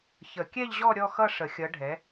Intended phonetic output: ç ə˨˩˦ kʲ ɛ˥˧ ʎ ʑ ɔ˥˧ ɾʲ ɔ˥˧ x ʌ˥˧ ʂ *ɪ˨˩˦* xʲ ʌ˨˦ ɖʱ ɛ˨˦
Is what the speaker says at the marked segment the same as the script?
no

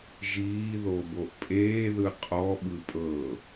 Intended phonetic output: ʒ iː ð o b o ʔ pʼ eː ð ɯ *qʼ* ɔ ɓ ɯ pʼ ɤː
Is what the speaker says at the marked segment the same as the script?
yes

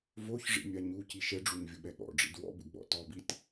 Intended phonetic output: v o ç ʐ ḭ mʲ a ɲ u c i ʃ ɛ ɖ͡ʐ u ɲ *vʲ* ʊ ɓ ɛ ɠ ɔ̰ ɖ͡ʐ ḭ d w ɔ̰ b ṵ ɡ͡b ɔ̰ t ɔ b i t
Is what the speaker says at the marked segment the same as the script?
yes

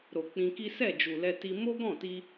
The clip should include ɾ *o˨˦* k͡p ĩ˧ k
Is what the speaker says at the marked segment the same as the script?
no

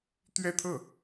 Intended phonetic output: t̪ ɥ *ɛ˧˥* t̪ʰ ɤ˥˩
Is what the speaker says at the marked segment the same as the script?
no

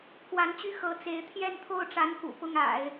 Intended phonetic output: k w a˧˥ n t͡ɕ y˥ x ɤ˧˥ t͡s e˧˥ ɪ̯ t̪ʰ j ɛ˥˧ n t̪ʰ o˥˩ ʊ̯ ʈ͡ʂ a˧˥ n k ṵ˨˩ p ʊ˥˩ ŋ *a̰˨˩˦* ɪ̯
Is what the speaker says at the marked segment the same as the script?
yes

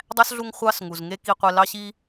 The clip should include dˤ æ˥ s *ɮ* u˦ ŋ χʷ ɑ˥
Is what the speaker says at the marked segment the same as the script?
yes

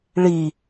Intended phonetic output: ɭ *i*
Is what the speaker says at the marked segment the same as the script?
yes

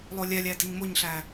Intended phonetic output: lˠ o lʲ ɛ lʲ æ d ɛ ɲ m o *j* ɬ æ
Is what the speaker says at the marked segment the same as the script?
no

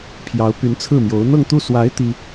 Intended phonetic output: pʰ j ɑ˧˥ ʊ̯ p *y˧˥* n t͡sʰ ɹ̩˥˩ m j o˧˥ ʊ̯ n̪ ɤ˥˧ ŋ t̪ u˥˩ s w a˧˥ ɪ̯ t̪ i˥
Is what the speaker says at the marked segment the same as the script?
yes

